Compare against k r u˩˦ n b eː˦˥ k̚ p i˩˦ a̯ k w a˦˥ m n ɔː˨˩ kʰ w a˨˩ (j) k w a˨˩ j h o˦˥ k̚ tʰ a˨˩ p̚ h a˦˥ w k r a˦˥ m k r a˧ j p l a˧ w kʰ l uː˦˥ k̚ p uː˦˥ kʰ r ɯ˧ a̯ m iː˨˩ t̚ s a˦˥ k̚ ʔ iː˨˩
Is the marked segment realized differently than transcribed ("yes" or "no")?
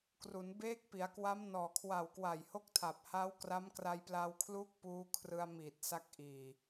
yes